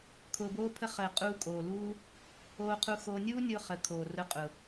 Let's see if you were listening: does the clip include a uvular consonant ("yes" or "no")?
yes